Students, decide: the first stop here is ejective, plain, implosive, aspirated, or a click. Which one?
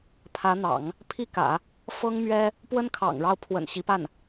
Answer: aspirated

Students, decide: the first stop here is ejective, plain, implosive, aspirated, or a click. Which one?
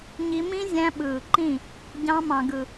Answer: implosive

